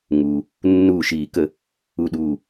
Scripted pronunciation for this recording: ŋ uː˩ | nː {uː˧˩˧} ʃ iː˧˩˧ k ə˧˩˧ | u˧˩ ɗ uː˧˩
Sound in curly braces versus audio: incorrect: uː˧˩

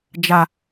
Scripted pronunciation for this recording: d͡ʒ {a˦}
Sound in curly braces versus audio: correct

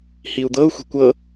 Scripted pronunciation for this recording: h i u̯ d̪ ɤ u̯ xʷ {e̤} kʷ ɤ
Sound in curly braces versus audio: correct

